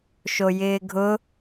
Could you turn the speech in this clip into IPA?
ʃ o j ɪː ɡʱ ʊ

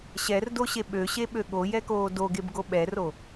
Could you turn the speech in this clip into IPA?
ɕ ɛ r d o ɕ e ɓ ø ɕ e ɓ ø ɠ o j ɛ k oː d o ɡ e b ɡ o ɓ ɛ r o

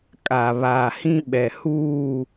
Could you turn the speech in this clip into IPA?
kʼ a˨ β aː˨ h ĩ˦ ɓ ɛ˨ h uː˦˨

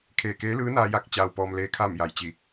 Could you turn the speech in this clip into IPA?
kʰ eː˧˩ k eː˧˥ l ɯː˧˥ n aː˧ j a˧˥ k̚ t͡ɕ aː˧ w p ɔː˧ m l eː˧˥ kʰ aː˥˨ m j a˧˩ j t͡ɕ i˧˩

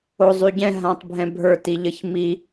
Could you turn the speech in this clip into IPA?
o zˤ y ɟ ɛ̃ ɦ ã tˤ bʱ ɛ̃ bʱ ə˞ t i ʎ ə ç m i

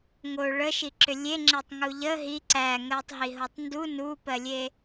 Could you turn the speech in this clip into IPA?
ŋ o ɭ ə ʃ i ǁ ʏ lʲ e ŋ͡ǁ e tˤ ŋ u ʎ ə ɦ i ǀ æ ŋ ɜ tˤ ɦ i ɦ o tˤ n d u n u p ɜ lʲ e

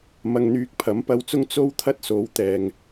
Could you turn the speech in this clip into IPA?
m ɐ˧ ŋ n̪ yː˧ k̚ pʰ ɐ˨˥ m p ɐ˧ w t͡s ʊ˥ ŋ t͡s o˥ w t̪ʰ ɐ˥ t̚ s o˨˥ w t̪ ɛː˨ ŋ

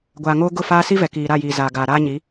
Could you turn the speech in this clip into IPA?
ɡʷ aː˨ ŋ oː˦ ɡ ʊ˦˨ f aː˦ s i˦ v ɛ˨ k iː˨ ɾ a˦˨ j iː˨ z aː˨ ɡ aː˨ ɾ aː˦ ɲ i˨˦

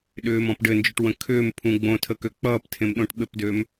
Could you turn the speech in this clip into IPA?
ɗ ʏː m ɔ̃ p ɖ ɘ n d͡ʒ ʏ ʈ w ə̃ kʰ ʏː m pʰ ũ ɡ͡b õ tʰ ə k ø k͡p ʌː p tʰ ẽ m ɗ õ ʈ ɓ ɘ p d ø m

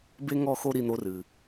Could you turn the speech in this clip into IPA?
b e˦ ŋ ɔ˦˨ x o˦ ɾ i˧ n̪ o˧ r ɨ˨

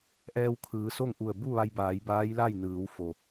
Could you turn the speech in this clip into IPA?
ʔ ɛː˧ w kʰ ɯː˩˧ s o˥˨ ŋ ʔ u˧˩ ə̯ b u˥˨ ʋ a˧ j b aː˩˧ j b aː˧˥ j l a˥˨ j n ɯː˩˧ w f o˩

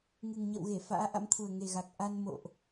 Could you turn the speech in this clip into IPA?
ŋ ɨ˨˩ ŋ ɲ ə̰˧˨ w ɣ e˧˩ f a̰ː˧˥ ʔ a̰˧˥ m t̪ʰ u˨˩ ə̯ ŋ e˨˩ ɣ a˨˩ k̚ ʔ a˧ n m o̰˧˨ ʔ

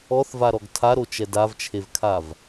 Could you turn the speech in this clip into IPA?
ɔ θ v a ɾ ɔ ɡ tʰ a ɾ o t͡ʃ ɛ d a v t͡ʃʰ e v kʰ a v

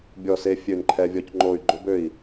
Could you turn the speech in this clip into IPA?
bʲ ɔ˧˩ s e˧ fʲ ø˧˩ n ǃʰ ɛ˧ vʲ ɔ˧ c ŋ͡ǃ o˧˩ y̯ ɡ͡ǃ o˧ b ø˧˩ i̯

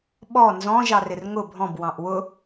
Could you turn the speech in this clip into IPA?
ɓ ɔ n z ɔ̃ ʒ ɑ r ɪ r ŋ ʊ bʱ ɔ̃ b w ɑ̃ ʔ w ʊ

